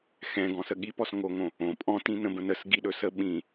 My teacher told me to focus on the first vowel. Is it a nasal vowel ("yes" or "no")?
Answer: yes